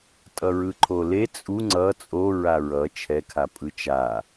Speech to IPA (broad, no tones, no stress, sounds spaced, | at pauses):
tʼ ʌ ɹ ɯ ǃʰ o l e t͡sʼ u ŋ͡ǀ ʌ t͡sʼ o ɹ a ɹ ʌ t͡ʃʰ ɛ kʰ a pʼ ɯ t͡ʃ a